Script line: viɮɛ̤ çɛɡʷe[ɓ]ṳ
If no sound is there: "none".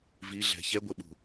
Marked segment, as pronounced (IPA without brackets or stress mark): ɓ